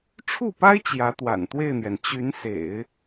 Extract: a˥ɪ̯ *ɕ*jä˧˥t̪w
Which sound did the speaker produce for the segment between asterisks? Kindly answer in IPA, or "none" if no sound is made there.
t͡ɕ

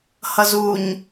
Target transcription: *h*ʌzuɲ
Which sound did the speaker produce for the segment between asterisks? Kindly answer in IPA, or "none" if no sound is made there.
h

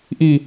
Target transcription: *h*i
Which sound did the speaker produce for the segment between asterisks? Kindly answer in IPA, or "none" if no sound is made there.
ʔ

